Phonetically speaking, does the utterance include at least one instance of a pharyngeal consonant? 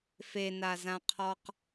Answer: no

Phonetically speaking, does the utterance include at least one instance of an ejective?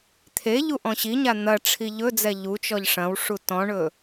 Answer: no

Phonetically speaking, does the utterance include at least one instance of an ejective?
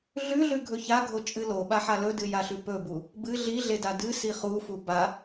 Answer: yes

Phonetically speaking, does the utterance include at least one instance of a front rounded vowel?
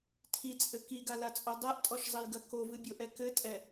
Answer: no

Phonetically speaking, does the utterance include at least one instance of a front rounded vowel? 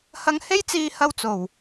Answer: no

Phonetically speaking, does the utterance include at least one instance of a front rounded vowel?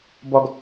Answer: no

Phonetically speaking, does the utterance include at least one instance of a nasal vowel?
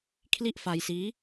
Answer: no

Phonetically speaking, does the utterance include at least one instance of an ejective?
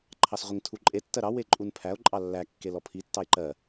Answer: yes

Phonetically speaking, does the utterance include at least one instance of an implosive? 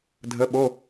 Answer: yes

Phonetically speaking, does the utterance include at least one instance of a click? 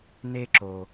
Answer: yes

